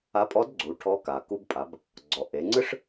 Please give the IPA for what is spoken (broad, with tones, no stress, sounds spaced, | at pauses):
a˧˥ pʼ ɔ˧˥ d ɡ͡ǀ u˩˧ ʈʰ ɔ˧˥ k a˩ k u˧ b pʼ a˩˧ b | ɡ͡ǀ ɔ˩ ʔ e˩˧ ŋ͡ǀ ɯ˥ ʂ